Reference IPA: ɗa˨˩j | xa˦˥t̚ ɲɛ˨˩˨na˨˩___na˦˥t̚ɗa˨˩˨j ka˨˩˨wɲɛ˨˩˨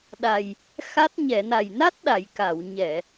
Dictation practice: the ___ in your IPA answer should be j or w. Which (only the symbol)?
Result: j